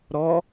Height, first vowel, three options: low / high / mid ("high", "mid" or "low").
mid